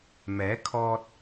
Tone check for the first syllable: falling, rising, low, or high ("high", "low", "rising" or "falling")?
rising